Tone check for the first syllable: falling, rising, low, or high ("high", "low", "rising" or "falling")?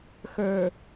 low